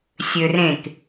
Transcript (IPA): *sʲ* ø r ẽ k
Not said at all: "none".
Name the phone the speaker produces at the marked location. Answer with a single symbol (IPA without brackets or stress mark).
sʲ